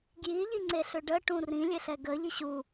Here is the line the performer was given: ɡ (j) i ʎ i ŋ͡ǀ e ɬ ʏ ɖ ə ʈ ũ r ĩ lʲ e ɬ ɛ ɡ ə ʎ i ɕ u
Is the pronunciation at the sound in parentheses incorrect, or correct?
correct